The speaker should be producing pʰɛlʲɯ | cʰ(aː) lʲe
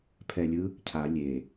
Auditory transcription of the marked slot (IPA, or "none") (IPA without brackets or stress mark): a